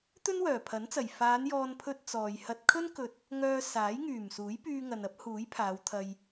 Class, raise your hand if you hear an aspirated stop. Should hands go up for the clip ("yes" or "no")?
yes